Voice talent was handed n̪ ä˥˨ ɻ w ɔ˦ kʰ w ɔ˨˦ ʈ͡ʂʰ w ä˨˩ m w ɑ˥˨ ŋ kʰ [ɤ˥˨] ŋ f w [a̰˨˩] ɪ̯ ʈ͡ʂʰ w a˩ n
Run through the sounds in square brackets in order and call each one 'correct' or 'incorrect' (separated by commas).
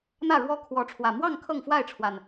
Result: correct, incorrect